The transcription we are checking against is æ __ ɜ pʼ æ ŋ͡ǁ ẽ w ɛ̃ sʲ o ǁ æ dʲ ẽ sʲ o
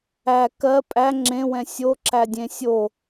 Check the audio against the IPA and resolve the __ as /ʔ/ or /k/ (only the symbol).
k